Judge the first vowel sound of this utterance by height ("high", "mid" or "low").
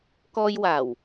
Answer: mid